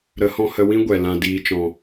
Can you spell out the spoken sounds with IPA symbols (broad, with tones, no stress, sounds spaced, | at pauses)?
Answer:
ɾ ə˨˦ h ɔ̃˧ h ə˧ w ĩ˦ ɡʷ ɛ˨ l ã˨ d iː˨ t͡ʃ ɔ̃˨